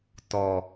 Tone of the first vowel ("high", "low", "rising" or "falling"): low